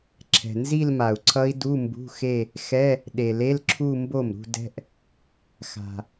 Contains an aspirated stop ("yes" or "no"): yes